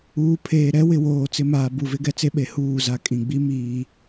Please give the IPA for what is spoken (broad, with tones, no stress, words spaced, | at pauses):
uː˨ pʰeː˨ɾɛ˦ wɪ˦˨woː˦˨t͡sɪ˦ maː˨bu˨vɪ˦ɡɛ˦ t͡se˦ɓe˨ huː˦˨za˦ kʼĩ˨ɡ͡bi˦ miː˦